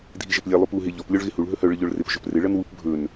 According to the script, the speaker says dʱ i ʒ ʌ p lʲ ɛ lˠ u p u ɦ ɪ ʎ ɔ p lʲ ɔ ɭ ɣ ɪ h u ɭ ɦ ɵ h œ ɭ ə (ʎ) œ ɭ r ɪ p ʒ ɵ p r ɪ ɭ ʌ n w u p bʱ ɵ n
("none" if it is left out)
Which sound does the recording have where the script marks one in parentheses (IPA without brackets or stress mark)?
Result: ʎ